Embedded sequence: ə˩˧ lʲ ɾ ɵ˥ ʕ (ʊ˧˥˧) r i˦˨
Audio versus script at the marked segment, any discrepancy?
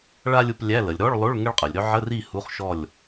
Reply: yes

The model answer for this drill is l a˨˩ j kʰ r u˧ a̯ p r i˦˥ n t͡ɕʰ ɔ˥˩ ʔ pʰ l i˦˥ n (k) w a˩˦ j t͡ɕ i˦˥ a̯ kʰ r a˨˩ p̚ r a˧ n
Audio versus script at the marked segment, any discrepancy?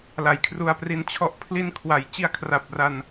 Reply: yes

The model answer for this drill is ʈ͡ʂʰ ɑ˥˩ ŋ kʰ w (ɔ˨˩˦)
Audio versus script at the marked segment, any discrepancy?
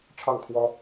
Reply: yes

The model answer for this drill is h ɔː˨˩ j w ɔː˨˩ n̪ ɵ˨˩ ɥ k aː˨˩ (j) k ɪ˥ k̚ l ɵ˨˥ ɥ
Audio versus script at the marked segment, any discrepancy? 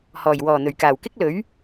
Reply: yes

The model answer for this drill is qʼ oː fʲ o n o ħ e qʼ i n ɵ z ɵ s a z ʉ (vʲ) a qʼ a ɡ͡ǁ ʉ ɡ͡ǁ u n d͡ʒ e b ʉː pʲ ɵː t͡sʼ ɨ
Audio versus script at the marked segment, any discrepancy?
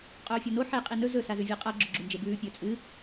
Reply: no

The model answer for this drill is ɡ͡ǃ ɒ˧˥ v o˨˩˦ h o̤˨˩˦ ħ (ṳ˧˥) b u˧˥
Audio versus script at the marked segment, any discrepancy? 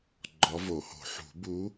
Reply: yes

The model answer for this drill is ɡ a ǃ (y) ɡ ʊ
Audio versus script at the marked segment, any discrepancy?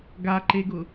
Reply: yes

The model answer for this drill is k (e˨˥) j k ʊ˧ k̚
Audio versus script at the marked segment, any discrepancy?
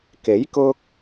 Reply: no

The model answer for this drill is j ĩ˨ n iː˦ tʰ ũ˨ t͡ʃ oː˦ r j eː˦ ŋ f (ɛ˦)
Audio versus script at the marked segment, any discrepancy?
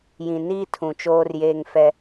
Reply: no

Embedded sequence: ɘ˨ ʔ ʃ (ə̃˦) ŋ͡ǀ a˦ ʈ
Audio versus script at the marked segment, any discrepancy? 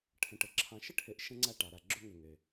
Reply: no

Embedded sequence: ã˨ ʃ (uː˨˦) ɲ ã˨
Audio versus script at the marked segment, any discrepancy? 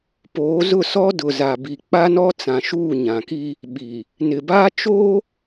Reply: yes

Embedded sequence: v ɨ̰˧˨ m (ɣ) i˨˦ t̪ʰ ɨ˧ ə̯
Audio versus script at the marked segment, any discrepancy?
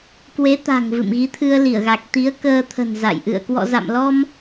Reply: no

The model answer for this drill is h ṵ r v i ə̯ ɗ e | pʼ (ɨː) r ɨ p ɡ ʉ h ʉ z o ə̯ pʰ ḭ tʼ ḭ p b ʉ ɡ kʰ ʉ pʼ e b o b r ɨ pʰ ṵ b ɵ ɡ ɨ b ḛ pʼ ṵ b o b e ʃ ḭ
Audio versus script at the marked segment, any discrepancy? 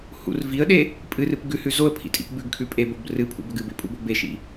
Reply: yes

